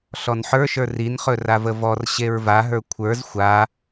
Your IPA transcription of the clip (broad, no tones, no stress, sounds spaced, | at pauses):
ɬ ɔ n ħ ə˞ ʃ ə˞ r i n χ ɵ r a v ə v ɔ r ɕ e ɹ v a ɦ ə˞ kʷʰ ə˞ z xʷ a